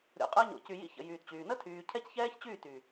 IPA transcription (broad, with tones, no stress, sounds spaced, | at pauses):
ɾʲ o̰˨ qʼ əː˧ ɲ o̰˨ c y˨ j ḭ˦ ç ə̰˨ j yː˨ t t͡ɕ yː˨ n ə˦ tʰ yː˨ cʰ ɛ˦ c ç ɛː˦ ç t͡ɕ yː˦˨ t y˨